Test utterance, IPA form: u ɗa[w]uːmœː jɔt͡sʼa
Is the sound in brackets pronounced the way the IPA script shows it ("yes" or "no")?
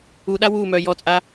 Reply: yes